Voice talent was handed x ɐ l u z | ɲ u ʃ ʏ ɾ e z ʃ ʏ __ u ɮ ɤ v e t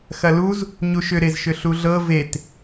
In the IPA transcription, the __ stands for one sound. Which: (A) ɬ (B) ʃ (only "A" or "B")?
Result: A